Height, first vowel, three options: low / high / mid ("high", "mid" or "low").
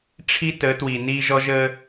high